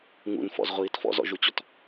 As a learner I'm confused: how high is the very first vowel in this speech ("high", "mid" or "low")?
high